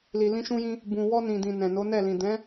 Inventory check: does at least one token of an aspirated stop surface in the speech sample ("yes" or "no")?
no